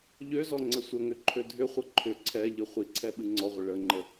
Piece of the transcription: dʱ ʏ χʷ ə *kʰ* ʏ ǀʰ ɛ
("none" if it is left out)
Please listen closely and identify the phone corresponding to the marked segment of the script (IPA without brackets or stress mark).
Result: ǃʰ